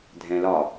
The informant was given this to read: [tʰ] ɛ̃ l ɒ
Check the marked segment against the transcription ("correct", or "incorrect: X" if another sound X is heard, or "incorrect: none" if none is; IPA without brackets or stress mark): incorrect: dʱ